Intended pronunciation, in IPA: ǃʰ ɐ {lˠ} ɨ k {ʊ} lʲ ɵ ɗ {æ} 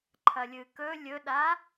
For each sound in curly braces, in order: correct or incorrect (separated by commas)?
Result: incorrect, incorrect, incorrect